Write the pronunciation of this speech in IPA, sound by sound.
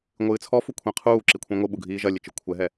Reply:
ŋʷ ɨː t͡sʰ ɔ f u kʷʰ ẽ qʰ uː ǁ i kʷʰ ẽ ŋʷ ɨ ɓ u ɡʱ iː ʒ ɐ lʲ ɘ t͡ʃ ɨ kʷʰ ɛ ɦ ɛ

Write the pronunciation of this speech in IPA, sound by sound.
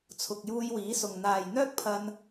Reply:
t͡sʰ ʊ˨ k̚ j uː˧ j w iː˨˥ s ʊ˨ ŋ n̪ aː˨ j n̪ œː˥ k̚ pʰ ɐ˧ n

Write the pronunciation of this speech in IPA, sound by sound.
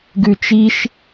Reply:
ɡ ʉ t͡ʃ i ʃ

